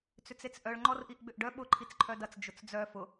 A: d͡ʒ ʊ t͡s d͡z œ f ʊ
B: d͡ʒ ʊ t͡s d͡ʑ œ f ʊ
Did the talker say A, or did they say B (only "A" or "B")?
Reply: A